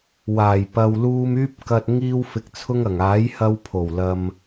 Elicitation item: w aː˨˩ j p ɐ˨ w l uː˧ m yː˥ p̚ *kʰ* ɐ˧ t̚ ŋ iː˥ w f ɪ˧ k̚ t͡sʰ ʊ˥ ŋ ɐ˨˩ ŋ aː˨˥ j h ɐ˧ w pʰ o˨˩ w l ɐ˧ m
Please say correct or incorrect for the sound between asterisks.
incorrect